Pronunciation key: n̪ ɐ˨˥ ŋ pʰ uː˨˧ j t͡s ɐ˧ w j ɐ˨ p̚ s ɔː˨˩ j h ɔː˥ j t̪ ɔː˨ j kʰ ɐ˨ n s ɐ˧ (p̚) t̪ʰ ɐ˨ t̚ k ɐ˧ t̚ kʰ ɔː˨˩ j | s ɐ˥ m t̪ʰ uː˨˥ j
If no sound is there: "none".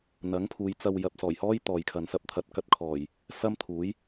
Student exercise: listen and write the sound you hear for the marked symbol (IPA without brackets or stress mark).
p̚